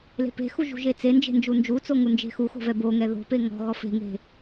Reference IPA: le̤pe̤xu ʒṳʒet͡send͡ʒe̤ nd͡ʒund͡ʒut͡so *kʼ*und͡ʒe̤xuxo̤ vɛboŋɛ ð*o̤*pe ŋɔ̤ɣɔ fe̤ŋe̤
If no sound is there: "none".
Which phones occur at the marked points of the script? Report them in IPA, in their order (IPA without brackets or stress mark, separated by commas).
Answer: ŋ, o̤